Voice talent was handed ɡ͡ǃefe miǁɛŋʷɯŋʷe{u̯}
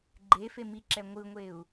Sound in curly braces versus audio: correct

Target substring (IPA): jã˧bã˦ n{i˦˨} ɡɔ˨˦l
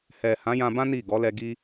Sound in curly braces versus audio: correct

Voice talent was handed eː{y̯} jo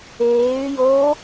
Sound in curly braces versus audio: correct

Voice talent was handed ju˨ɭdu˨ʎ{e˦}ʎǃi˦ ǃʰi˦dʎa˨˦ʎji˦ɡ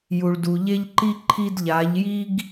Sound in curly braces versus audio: correct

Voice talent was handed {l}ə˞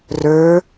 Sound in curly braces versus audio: incorrect: r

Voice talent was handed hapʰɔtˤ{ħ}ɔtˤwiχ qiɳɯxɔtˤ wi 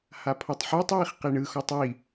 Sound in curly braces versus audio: correct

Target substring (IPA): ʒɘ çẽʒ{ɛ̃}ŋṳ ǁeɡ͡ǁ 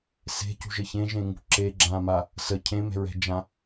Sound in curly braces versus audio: incorrect: ẽ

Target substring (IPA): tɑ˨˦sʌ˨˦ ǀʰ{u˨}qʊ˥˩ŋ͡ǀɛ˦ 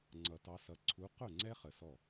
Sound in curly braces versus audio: incorrect: u˨˦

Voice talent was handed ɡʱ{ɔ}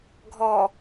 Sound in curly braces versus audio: correct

